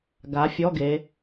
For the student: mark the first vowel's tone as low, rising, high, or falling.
rising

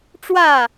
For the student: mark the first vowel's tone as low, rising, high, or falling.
falling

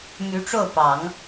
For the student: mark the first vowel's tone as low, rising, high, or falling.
rising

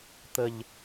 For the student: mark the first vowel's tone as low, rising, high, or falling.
low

